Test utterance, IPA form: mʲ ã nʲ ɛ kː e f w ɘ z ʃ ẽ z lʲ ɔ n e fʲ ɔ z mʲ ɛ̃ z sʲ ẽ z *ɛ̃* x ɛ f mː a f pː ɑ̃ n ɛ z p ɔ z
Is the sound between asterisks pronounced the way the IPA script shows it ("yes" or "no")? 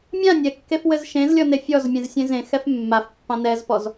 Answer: no